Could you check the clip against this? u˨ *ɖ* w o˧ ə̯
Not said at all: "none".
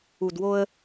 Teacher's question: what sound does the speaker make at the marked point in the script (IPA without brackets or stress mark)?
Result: d